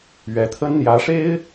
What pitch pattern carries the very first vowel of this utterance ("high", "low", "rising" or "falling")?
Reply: rising